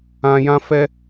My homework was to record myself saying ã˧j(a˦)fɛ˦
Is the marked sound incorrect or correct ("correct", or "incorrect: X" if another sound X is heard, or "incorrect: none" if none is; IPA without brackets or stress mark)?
incorrect: ã˦